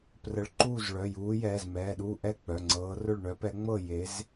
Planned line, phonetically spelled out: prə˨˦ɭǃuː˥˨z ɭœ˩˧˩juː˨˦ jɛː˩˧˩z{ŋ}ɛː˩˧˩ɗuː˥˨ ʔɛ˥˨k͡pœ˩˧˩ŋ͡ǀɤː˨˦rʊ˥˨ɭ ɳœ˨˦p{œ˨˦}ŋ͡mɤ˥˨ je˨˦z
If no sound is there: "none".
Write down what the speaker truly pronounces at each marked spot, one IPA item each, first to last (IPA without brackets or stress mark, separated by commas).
m, ɛ˨˦